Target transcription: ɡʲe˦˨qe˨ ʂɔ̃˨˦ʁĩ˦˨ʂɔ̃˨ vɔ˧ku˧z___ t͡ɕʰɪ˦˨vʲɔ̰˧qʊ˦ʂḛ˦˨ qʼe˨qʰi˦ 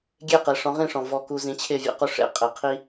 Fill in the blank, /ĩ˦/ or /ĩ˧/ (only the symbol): ĩ˧